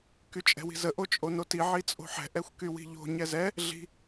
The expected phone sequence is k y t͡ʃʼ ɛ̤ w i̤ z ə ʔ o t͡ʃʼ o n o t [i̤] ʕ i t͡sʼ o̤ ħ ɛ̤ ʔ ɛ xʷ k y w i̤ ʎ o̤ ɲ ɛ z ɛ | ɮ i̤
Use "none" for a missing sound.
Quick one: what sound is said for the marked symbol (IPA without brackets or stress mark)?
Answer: i